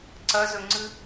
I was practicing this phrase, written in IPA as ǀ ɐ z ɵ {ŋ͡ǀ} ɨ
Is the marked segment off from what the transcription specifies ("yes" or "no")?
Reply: no